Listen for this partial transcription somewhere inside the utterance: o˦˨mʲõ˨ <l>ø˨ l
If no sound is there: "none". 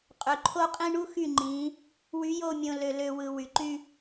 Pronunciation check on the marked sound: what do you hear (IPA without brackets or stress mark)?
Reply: l